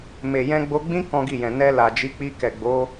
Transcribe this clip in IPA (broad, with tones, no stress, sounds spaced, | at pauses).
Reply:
m e˨ j ɛ̃˧ ɡ͡b o˧ ɡ͡b ĩ˦ k ɔ̃˦ ɡ i˦˨ j ɛ̃˨ n ɛ˧ l a˨ d͡ʒ i˨˦ k͡p i˧ k ɛ˨ ɡ͡b o˨˦